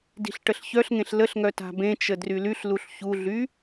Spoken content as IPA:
d i̤ ɬ ʈ ə ɬ ç œ ɬ ŋ ẽ ɬ l ə ɬ ŋ œ t a̤ b ẽ t͡ʃ ə d r y l y ɬ l u ɬ ç u ɮ y

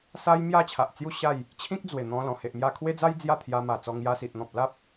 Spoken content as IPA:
s a˦ j m j a˥˧ t͡ɕʰ a˨ ʔ t͡s j u˥˧ ɕ a˥˧ j | t͡ɕʰ ĩ˦ k̚ d͡z w e˨˩ n̪ ɔ̃˧ l ɔ̃˨˩ h e˨ ʔ m j a˧ kʰ w e˦ d͡z a˦ j d͡z j a˥˧ t̪ʰ j a˧ m a˨˩ t͡s ɔ˧ ŋ j a˧ s i˨ ʔ n̪ ɔ̃˨ p̚ l a˦ p̚

